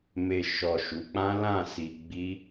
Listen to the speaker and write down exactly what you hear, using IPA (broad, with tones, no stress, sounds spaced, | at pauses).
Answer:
m e˨ ʃ ɔ˨ ʃ u˨˦ k͡p ã˦ l ã˦˨ s i˧ ɡ͡b i˦